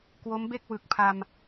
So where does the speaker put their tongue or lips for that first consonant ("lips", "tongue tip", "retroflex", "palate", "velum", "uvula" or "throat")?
velum